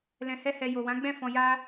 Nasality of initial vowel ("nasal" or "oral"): nasal